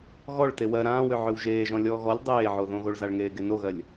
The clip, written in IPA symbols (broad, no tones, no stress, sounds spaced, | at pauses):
ɣ ɔ ɭ t e w ɜ ɾ ãː w ø ʕ ø w ʒ eː ʒ ɔ̃ lʲ ɔː ɣ ɔ lʲ dˤ eː ʕ o ð õ ɣ o ɭ z a ɭ ŋ eː ɡ e n o ɣ ɜ lʲ